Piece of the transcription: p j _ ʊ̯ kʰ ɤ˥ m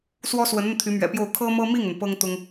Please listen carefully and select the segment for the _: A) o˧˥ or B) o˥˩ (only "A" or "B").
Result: B